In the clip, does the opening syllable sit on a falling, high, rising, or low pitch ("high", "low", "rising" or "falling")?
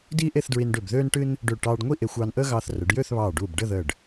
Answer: high